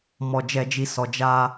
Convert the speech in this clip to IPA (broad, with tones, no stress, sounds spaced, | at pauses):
m ɔ˧ d͡ʒ ɛ˧ d͡ʒ i˧ s ɔ˧ d͡ʒ a˧